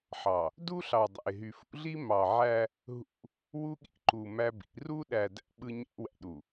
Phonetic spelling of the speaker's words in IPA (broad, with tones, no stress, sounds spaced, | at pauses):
ħ ɑ˨ | d u˦ ɬ ɑ˨ dˤ æ̰˨ ɪ̯ ɦ y˨ f ṵ˦ ɮ i˦ m ɑ˨ ʕ æ˦ | ɦ ṵ˦ | w u˦ ɠ ḭ˦ ǃ u˨ m æ˦ b ḭ˨˦ r u˦ ɗ æ˨ d æ̰˦ ɓ ɯ˦ ɲ æ̰˦ w æ̰˨ ɗ u˨